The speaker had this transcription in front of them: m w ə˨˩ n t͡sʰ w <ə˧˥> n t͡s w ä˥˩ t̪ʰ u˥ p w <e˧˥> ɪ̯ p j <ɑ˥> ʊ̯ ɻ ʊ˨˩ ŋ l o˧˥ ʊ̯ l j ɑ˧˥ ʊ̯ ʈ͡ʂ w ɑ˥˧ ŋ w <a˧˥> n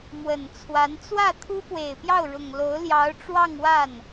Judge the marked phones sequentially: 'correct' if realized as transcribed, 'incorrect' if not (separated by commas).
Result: incorrect, incorrect, incorrect, incorrect